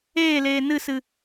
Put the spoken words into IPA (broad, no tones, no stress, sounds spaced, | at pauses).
eː l eː n ɨ s ɨ